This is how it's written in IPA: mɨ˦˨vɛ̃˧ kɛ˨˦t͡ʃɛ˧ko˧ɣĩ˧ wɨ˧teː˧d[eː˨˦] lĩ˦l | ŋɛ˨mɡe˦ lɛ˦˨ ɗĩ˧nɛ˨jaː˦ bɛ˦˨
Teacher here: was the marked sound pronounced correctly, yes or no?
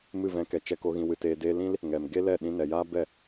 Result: no